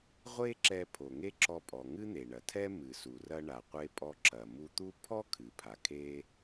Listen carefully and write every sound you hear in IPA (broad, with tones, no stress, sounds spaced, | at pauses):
ʁʷ e˥ ǁ ɛ˧ pʰ o˩ ŋ e˥ ǁ ɔ˧ pʼ ɔ˩ ŋ ɨ˥ n̪ e˩ ɳ ɐ˩ tʰ ɛ˥ m ɨ˩ s u˩ r ɐ˧ ɳ a˩ qʷ e˧ pʼ ɔ˧ ǁ ɐ˩ m u˧ t̪ u˥ pʰ ɔ˥ kʰ ɨ˩ pʰ a˩ kʰ e˧